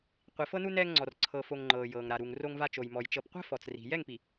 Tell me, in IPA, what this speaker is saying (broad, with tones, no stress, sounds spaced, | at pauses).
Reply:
qʷ i˨ f ɤ˦ n u˦ n ɛː˦ ŋ ŋ͡ǀ ɔ˨ r ǀʰ ɤ˨ f o˨ ŋ ŋ͡ǃ ɤː˨ j ɤː˨ ŋ ɾ a˨ ɾ u˨ ŋ r o˦ ŋ v a˦ t͡ʃ o˨ j m ɔ˨ j t͡ʃ ɤ˨ p qʷ ɛ̤˦ f ɔ˨ t͡s r i̤˨ j ɛ˦˨ ŋ p i˨